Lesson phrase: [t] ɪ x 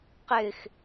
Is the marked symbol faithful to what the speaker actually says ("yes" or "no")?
no